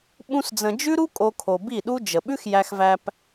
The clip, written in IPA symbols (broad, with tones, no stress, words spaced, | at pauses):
ɓũ˦sd͡zə̃˧ d͡ʒʉ˦ɾu˦ kʼo˦kʰo˧ bi˦˨ɗu˦ d͡ʒə˨ ɓʉ˦xjæ˧xvæ˧p